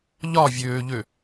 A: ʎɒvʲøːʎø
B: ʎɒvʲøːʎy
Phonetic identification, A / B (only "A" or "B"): A